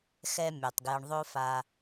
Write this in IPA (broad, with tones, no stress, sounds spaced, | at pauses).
x ɛ˨ mʲ ø˩ tˤ ɡ j ɘ˩ ɳ ðˤ o˨ f a˩